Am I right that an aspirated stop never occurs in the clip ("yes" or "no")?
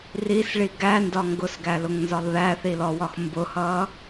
yes